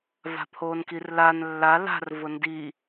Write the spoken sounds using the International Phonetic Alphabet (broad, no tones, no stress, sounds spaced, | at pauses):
v a̤ pʰ oː n k i r l a n lː a l a̤ r v ʊ n d i